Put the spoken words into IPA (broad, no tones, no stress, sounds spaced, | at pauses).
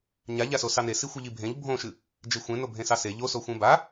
ɲ a ʎ a s o s ɑ n e s i xʷ i ʎ i bʱ ẽ ʎ bʱ õ ʃ ɨ | d͡ʒ e xʷ ẽ n o bʱ ẽ s ɑ s e ʎ o s o xʷ ẽ b a